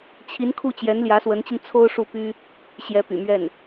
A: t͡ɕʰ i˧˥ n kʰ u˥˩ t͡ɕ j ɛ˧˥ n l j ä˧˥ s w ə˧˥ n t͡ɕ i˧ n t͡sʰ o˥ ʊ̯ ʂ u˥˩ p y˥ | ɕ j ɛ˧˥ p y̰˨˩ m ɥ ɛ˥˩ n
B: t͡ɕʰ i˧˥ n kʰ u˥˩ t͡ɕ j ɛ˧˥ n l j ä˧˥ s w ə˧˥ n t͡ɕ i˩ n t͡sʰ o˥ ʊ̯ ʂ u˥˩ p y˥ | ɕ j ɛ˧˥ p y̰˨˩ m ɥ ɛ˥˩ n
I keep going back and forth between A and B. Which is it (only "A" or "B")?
A